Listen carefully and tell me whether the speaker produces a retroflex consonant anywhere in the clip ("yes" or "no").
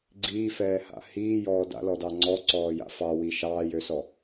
no